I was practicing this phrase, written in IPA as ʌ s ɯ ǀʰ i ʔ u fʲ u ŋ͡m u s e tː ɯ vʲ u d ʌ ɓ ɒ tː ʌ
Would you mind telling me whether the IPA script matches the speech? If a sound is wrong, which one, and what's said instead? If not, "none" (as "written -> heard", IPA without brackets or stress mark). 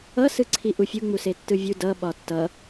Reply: none